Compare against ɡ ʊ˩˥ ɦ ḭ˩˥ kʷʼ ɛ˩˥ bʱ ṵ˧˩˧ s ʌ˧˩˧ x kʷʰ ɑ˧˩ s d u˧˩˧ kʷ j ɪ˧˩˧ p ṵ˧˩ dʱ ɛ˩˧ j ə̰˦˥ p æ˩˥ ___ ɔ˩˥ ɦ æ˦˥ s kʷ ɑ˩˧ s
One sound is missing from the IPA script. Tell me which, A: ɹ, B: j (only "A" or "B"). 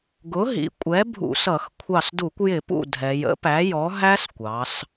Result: B